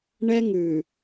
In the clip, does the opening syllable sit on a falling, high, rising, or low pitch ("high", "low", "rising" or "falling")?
high